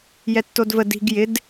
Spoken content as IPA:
j ɛ tː o d v ə d i̤ ɡ j ɪ d

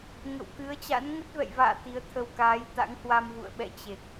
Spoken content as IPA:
ŋ ə̰˧˨ w k ɨ˨˦ ə̯ t͡ɕ a̰˧˥ n ŋ ə˦˥ t̚ v ɛ̰˧˨ j v a̰ː˧˨ t̪ i˨˦ ə̯ t̪ʰ ə˧ w k aː˨˦ j t̪ a̰˧˥ ŋ h w a˧ m v ṵ˧˨ ə̯ ɓ ɛ̰˧˨ t͡ɕ e˨˩ k̚

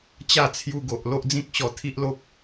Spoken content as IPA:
t͡ɕ a˥˧ t͡sʰ j u˧ ɡ o˨ ʔ l o˦ ʔ d͡z ĩ˦ k̚ ɕ ɔ˧ t̪ʰ i˦ ʔ l o˦ p̚

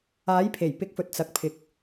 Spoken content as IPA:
aː˨˥ j pʰ e˨˩ j p ɪ˨˥ k̚ f ɵ˨ t̚ t͡s ɐ˨ k̚ pʰ ɪ˨˥ k̚

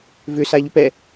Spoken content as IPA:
v ʏ s a ʎ ʏ p ɛ

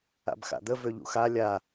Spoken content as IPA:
a̰ b x a̰ d̪ ə v ø ʎ ṵ x a lʲ a

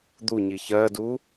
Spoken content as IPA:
d̪ u ɲ i ç ɜ d u

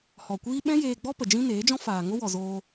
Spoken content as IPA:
h ɔ˨ kʷ iː˦ ɓ ɛ̃˦ j eː˧ ɡ͡b ɔ˦ p ə˨ d͡ʒ ĩ˦ n eː˨˦ d͡ʒ ɔ̃˦ f aː˨ ŋ o˦ w ɔ˨ z oː˧

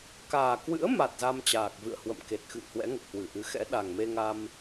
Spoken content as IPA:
k aː˨˩ k w ɨ̰˧˥ ə̯ m a˨˩ t̚ z a˧ m t͡ɕ aː˨˩ k̚ v ɨ̰˧˨ ə̯ h w ə̰˧˨ m k e˨˩ t̚ x ɨ̰˧˨ ŋ h w ɛ̰˧˥ ŋ ə˨˩ p̚ h w ɨ˧˩ ʔ ɨ˨˦ x ɛ̰˧˥ ɗ a˨˩ ŋ m e˧ ŋ a˧ m

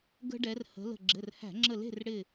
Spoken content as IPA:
ɡ ə̤˦ ɖ ɛ˨˦ r h ə̤˨˦ l ə̤˧˩ ɡ͡ǁ ɘ˩˧˩ r h æ̤˧˩˧ ŋ͡ǁ ə˧˩ l e̤˥˨ r ɽ ɪ˧˩

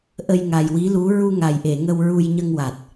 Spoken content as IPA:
ʔ ə˧ j ŋ a˨˩ j w i˧˥ l u˧˥ ɹ u˧ ŋ a˨˩ j ʔ e˨˩˨ ŋ ə˧ w ɹ u˧ j ɲ ə˧ ŋ w a˨˩ t̚

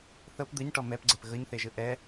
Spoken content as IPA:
θ ɤ p d̪ ɯ ɲ ʈ ɔ m ɛ p ɡ͡ǀ ɛ p ɣ ɤ ɲ θ e ʒ ɯ ʔ ɛ

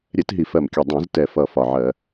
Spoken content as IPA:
ɾʲ ɛ˧˩˧ t ɦ i˨˩ f ɜ˨˩ m kʲ ʌ˨˩ dˤ ɛ̃˧˩˧ z t ɛ˨˩ f ʌ˨˩ f ɒ˨˩ ʕ ɜ˧˩˧

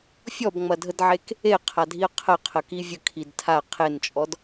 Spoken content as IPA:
fʲ ɔ b ŋ͡m ɐ dʱ ə d ʕ e k | e qʰ a dʱ i ə̯ qʰ ə qʰ ə k i vʲ ə kʰ i d tʰ a qʰ e n t͡ʃʼ ɔ d

